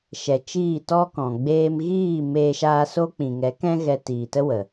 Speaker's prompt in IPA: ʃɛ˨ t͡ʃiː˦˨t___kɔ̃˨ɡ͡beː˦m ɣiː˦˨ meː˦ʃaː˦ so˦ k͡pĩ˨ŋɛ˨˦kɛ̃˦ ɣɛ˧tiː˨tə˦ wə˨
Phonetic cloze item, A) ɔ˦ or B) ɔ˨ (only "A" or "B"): A